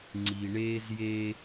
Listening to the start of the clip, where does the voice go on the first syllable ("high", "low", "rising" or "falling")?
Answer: low